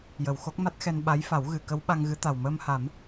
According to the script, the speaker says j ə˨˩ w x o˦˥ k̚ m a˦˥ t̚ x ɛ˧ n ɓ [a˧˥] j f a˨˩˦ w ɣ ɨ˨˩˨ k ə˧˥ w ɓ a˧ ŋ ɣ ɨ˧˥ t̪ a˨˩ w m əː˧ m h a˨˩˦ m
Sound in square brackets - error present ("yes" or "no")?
no